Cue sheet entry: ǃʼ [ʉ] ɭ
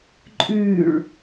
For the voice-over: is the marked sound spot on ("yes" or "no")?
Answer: yes